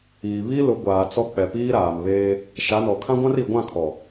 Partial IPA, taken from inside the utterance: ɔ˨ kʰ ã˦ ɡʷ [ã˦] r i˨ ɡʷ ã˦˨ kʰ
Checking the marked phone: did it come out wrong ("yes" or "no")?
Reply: no